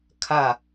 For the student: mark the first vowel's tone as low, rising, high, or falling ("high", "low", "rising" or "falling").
falling